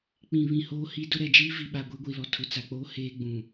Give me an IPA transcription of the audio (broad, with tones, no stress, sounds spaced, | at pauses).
k͡p ĩ˨ β ĩ˨ h oː˦ h i˦ d ʊ˦ ɾ ɛ˨ d͡ʒ iː˦ v i˨ ɓ a˨ ɡʷ e˦ ɡʷ i˨ l ɔ˨ tʰ ʊ˨ t͡s a˨ k͡p oː˦ h eː˦ ɡ͡b ũ˨